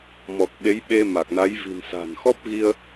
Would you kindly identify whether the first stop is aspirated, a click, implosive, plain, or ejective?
plain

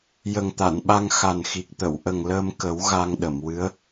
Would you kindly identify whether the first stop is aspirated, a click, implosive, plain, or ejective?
plain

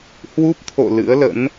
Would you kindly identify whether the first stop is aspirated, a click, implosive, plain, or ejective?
plain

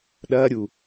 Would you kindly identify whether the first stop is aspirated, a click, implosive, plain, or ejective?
implosive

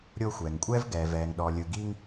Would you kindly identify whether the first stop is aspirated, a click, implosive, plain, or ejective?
ejective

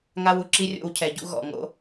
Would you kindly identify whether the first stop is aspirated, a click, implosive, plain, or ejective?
click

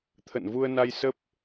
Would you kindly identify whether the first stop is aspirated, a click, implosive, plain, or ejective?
aspirated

